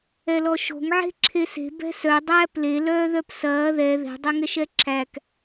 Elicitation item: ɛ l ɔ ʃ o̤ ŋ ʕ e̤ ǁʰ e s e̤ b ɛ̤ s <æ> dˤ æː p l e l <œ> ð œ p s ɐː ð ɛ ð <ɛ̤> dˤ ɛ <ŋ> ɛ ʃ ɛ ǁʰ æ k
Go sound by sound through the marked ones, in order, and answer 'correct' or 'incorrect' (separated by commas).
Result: incorrect, incorrect, correct, correct